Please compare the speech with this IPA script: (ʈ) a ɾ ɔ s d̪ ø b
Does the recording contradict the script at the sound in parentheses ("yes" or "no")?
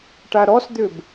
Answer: no